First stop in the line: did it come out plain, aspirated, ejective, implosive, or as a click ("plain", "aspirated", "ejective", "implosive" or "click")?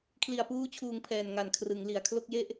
aspirated